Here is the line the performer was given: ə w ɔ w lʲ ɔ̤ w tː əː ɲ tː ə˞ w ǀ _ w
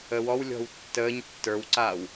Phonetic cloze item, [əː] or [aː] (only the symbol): aː